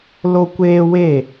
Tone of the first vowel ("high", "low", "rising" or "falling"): high